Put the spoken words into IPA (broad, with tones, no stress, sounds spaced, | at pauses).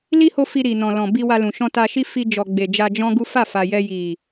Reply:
l i˦ h o˦ f i˧ ɾ i˨ n ɔ̃˨ l ɔ̃˨ b i˧ w a˧ l ũ˨ ʃ ɔ̃˧ t a˧ ʃ i˦ f i˧ d͡ʒ ɔ˨ ɡ͡b e˨ d͡ʒ a˧ d͡ʒ ɔ̃˦ ɡ u˦ f a˦˨ f a˨ j ɛ˧ j i˨